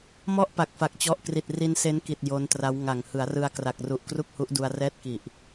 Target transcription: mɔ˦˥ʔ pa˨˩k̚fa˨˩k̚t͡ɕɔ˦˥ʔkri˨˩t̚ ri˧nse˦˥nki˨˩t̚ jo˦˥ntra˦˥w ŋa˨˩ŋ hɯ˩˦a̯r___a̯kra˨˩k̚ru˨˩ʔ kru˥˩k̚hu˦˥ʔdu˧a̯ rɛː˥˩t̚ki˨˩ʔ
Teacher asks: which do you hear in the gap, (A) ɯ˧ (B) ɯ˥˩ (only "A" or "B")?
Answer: A